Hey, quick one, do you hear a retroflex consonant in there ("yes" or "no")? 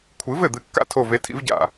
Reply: no